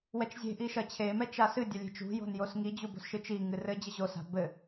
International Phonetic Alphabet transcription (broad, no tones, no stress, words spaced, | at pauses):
wɛt͡ʃzʲe̤ʔi ʃɐt͡ɕʰemɛ t͡ʃasɨdʲɐ lʲe̤t͡ʃṳjo̤n josŋid͡ʑu bo̤sʃɨt͡ʃiŋɨ rɘ d͡ʑɘʑosa̤ bɘ